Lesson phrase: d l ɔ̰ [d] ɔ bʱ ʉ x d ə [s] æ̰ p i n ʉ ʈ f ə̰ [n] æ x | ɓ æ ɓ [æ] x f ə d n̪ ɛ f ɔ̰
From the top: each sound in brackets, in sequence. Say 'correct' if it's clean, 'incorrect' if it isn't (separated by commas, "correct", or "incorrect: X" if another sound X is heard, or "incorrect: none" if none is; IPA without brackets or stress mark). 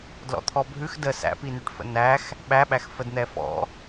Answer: incorrect: t̪ʰ, correct, correct, correct